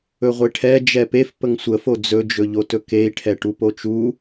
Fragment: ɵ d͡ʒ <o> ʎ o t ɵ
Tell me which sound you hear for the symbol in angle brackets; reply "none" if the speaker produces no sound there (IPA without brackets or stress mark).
ɵ